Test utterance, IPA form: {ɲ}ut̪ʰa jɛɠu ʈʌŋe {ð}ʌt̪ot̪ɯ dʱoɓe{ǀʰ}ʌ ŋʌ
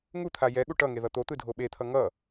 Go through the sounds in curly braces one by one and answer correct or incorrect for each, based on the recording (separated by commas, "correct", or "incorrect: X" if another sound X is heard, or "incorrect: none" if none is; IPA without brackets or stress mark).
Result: incorrect: ŋ, correct, incorrect: t̪ʰ